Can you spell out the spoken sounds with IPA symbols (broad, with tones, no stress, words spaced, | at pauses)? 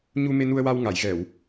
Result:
ɲu˧me˧nu˧ə̯wa˧w ŋa˨˩˨jɣɛ˨˩˨w